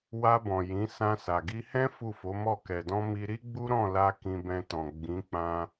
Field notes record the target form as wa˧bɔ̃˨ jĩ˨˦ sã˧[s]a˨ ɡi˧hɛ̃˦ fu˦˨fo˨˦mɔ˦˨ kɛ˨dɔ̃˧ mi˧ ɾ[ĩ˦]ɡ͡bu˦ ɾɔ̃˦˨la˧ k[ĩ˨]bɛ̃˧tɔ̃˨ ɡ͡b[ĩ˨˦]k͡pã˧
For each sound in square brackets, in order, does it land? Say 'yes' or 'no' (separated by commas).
yes, no, no, yes